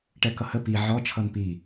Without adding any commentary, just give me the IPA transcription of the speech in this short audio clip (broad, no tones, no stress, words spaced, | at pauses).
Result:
ʈɛkʌhə pi ʕɔ t͡ʃʰʌnpi